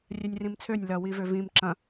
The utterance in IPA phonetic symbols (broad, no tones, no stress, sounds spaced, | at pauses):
rʲ ɛ nʲ r ĩ m t͡sʰ ø nʲ l ɐ w i v ø v ĩ m ǁ ɐ̃